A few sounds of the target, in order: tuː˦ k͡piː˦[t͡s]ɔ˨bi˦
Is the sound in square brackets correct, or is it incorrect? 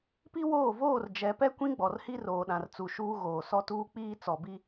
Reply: correct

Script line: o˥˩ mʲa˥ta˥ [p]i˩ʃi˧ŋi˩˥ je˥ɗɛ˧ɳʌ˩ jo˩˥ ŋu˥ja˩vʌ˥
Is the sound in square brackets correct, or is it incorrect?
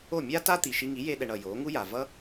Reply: incorrect: t̪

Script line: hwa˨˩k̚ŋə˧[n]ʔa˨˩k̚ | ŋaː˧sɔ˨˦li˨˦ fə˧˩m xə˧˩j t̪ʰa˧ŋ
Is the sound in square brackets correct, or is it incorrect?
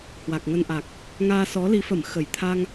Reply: correct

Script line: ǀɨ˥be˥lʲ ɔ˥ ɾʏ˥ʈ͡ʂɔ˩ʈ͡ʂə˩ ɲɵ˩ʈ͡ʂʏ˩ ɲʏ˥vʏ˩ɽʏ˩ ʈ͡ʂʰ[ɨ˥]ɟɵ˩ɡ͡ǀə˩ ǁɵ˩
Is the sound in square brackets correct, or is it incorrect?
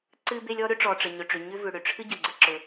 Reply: correct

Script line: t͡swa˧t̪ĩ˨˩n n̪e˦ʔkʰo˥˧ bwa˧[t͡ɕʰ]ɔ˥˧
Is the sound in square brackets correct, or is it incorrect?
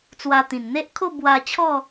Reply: correct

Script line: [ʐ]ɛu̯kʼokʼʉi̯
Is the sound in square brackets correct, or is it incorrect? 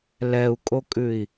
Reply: incorrect: l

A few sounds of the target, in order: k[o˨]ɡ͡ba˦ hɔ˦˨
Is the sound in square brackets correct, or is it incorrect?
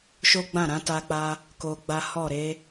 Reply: incorrect: o˧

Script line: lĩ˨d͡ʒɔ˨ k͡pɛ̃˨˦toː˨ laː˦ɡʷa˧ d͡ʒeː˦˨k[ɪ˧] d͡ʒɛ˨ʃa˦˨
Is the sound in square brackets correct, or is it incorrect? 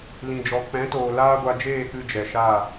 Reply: incorrect: ɨ˧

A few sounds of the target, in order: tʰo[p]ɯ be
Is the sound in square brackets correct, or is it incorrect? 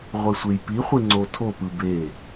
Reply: correct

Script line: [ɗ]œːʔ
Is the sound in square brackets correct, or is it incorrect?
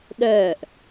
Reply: correct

